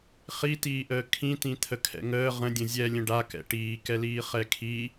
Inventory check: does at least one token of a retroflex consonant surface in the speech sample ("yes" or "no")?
yes